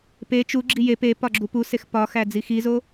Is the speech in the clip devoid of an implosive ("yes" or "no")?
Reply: yes